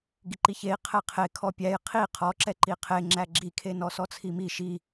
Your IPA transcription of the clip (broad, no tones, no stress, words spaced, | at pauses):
ɡiǃiçei̯ qʰɛqʰe kʰɔpʲæj qʰi qʰɔǁɛ ǃiqʰeŋ͡ǁæ ɡ͡ǁikʰe nɔsɔt͡sʰimi ʃi